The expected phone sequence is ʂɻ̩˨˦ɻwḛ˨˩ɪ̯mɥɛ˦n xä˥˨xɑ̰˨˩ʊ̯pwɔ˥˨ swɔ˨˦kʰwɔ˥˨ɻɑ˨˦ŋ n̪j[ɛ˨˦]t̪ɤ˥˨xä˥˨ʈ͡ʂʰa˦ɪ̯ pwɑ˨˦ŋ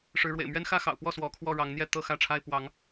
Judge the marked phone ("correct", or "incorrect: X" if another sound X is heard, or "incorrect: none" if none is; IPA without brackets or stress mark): incorrect: ɛ˥˨